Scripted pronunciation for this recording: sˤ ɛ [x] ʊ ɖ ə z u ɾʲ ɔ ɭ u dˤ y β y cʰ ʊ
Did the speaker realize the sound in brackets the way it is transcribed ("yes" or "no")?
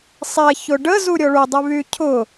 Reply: no